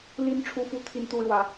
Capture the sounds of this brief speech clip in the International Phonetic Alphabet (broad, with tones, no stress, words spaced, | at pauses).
li˦n ʈ͡ʂʰu˦fu˦ t̪ʰi˦nt̪u˦ɻwä˨˦